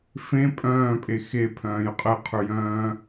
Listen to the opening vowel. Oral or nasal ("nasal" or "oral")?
nasal